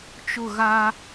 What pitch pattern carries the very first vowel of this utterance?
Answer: falling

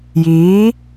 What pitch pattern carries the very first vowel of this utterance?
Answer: rising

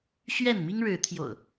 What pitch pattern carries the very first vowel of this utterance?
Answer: falling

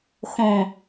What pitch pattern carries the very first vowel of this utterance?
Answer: low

